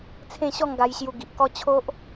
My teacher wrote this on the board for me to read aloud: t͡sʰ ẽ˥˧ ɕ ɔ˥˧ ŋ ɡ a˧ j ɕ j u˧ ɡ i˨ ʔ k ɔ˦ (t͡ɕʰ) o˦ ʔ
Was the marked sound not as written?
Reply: no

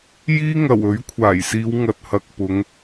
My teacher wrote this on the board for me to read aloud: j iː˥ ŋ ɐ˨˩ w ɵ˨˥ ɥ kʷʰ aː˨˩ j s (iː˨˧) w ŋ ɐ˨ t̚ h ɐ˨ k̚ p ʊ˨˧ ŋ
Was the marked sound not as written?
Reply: no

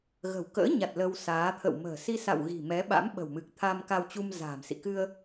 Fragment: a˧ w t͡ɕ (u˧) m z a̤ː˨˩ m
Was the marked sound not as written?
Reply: no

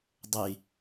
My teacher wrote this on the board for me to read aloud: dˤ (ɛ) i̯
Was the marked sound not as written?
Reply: no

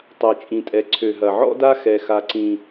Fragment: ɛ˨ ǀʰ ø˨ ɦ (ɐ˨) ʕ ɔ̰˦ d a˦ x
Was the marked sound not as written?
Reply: no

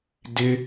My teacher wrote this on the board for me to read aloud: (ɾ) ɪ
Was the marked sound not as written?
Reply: yes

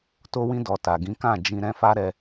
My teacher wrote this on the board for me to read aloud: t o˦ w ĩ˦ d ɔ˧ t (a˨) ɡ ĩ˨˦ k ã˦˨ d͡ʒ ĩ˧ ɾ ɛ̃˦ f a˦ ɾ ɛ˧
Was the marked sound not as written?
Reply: no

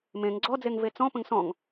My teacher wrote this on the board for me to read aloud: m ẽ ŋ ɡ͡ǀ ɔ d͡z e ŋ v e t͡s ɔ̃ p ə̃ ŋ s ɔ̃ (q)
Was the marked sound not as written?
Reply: yes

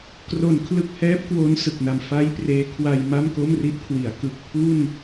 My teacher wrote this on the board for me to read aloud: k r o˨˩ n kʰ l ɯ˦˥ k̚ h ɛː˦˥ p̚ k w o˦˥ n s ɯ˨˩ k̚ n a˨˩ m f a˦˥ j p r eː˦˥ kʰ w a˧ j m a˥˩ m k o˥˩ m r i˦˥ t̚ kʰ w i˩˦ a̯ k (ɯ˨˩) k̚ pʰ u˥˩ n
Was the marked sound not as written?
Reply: no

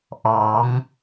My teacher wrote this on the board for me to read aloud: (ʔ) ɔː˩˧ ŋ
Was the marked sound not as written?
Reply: no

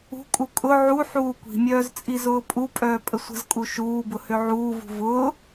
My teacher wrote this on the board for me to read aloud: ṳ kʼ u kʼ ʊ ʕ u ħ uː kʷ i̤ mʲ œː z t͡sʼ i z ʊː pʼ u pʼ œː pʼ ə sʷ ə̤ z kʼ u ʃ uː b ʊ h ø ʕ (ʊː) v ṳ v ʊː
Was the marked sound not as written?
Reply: yes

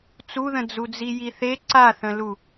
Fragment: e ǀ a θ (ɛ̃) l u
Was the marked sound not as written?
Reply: yes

